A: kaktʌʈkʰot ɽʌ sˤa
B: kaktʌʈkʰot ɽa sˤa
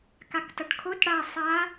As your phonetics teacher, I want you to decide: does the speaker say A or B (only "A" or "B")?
B